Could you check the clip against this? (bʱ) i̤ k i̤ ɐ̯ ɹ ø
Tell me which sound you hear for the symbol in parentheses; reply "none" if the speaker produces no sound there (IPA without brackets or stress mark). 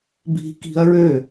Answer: bʱ